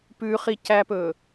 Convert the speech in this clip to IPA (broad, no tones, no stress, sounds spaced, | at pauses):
p ʉ χ i c æ p ɵ